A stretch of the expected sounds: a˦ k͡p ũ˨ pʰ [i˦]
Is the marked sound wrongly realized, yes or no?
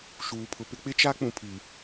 yes